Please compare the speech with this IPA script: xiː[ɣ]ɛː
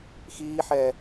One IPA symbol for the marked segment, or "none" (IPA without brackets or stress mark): ħ